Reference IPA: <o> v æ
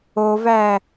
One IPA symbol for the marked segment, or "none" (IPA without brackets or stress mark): o